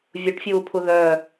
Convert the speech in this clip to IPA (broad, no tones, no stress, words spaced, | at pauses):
vʲuʈfʲuːpʰu ðœː